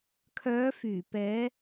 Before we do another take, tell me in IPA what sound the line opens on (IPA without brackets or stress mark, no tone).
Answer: kʰ